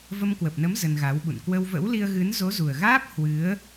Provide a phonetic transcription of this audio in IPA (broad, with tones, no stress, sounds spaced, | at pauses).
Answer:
v ə˧ m k w ə˨˩ p̚ n ə˨˦ m z ə˧ n ɣ a˨˦ w ɓ ṵ˧˨ n k w ə˧ w v ə̰˧˥ w l i˧ ə̯ ɣ ɨ˨˦ n z o˨˦ z u˨˩ ə̯ ɣ aː˦˥ p̚ h w ɨ˨˦ ə̯